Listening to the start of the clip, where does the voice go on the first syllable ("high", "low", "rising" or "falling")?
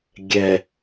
low